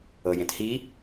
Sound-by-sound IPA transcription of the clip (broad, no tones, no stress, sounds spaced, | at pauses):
ɤ j ẽ t h i